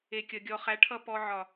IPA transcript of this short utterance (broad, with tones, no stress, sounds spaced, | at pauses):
e˨ kʲ ʌ˨ ɡʲ ɔ˧ χ æ˧ ʈʰ ʌ˦ p ɔ˧ ʕ ɒ˨